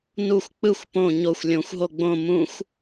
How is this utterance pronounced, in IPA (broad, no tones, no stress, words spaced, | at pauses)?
nuxʷ k͡pɯxʷ põ ɲoxʷ lʲõxʷɦo ɡ͡bõ mũxʷ